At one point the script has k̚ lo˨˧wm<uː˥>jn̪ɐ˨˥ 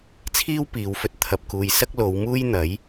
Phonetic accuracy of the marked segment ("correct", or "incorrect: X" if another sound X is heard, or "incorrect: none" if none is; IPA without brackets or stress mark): correct